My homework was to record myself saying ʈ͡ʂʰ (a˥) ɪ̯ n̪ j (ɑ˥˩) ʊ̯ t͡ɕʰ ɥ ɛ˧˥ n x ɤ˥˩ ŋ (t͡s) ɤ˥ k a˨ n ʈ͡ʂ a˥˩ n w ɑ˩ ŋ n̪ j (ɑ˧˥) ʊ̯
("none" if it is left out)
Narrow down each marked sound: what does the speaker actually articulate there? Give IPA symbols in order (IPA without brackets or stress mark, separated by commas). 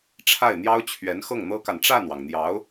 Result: a˥˩, ɑ˥, n̪, ɑ˧˥